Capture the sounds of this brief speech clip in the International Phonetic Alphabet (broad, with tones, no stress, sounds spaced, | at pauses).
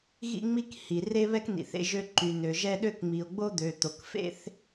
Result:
ɣ ḭ˥ ŋ͡m i˥ k h i˩ r e˥ β ɛ˥ k n ḭ˩ θ ḛ˥ ʒ ø˥ ǃ y˩ n ø˩ ʒ ɛ˥ ɗ ø˥ k ŋ͡m i˩ o̯ ɡ͡b o˥ d̪ ø˩ t̪ o˩ k f ḛ˥ θ